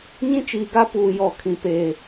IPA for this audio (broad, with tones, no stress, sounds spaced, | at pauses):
ɲ ĩ˦ t͡ʃ iː˨ ɡ a˦ p uː˨ j ɔ˨ kʰ ĩ˨ p eː˨